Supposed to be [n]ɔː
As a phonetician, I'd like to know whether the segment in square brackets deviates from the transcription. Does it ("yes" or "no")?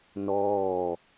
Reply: no